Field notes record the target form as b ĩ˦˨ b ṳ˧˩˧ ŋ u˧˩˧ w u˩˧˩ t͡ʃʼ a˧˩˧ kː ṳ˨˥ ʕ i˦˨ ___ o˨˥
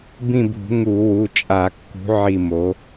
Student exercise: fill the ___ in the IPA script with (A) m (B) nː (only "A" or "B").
A